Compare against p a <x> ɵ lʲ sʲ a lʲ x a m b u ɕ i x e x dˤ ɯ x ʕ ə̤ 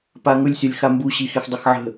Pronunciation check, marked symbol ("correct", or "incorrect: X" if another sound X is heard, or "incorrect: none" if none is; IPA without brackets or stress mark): incorrect: ŋ